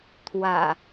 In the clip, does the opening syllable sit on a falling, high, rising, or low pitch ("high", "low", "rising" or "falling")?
low